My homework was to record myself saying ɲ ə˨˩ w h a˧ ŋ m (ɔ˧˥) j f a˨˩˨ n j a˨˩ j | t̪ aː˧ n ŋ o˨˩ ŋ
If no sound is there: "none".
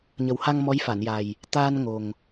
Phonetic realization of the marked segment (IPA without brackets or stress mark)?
ɔ˧˥